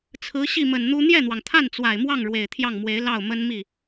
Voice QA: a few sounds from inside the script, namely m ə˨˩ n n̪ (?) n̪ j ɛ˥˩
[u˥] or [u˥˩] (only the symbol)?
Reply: u˥